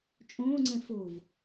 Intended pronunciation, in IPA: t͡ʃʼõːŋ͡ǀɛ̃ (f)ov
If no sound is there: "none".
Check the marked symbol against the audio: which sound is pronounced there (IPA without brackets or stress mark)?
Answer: f